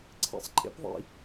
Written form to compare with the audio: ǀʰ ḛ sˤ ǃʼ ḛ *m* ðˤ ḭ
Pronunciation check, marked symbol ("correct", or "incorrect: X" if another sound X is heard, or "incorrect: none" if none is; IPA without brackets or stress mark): incorrect: p